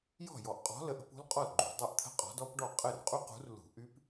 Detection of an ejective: present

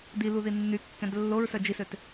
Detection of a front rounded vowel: present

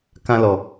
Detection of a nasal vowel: present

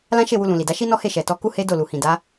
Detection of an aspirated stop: absent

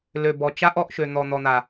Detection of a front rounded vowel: present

